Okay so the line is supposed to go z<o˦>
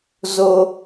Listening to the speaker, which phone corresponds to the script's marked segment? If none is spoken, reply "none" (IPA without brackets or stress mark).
o˦